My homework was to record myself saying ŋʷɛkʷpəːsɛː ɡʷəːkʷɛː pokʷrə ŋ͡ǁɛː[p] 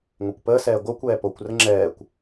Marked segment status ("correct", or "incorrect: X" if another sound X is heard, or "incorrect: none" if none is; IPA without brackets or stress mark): incorrect: kʷ